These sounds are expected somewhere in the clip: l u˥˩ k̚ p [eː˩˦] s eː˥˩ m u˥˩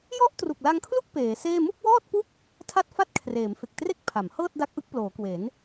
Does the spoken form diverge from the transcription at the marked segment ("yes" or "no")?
no